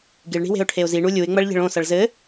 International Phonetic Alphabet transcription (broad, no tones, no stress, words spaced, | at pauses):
ɡiɭɳi̤we̤ʊ̯ʈʰeʊ̯ ziɳu lʲuɪ̯ŋ͡mɐɭʎe̤ɭ õsɐɭ zɘ